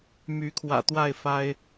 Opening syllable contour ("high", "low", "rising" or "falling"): rising